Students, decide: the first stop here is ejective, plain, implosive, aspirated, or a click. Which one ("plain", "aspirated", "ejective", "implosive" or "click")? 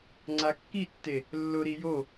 click